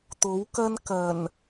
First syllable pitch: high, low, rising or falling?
rising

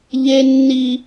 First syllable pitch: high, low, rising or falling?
high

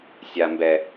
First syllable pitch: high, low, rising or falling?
high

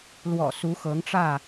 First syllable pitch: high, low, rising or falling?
low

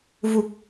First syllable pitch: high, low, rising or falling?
low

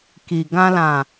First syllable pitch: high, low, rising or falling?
low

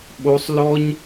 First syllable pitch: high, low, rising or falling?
high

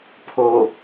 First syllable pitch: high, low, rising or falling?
low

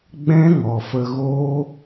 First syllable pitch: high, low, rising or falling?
high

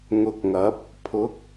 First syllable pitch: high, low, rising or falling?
low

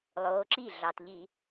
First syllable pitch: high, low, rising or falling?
rising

